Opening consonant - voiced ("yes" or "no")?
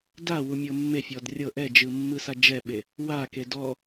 yes